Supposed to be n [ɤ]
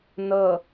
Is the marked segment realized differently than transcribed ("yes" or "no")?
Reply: no